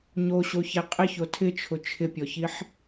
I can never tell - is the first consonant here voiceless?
no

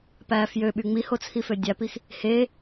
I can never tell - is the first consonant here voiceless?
yes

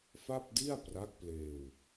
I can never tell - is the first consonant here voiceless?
yes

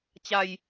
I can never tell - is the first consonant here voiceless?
yes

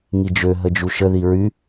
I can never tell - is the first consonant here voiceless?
no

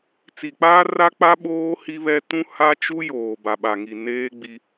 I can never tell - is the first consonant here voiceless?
yes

